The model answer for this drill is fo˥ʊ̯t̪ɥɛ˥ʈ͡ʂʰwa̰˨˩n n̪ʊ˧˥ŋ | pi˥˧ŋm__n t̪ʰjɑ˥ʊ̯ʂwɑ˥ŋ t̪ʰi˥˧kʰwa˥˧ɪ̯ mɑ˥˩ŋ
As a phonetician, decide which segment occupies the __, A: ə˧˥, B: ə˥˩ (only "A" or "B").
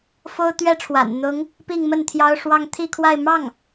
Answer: B